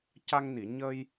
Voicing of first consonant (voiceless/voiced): voiceless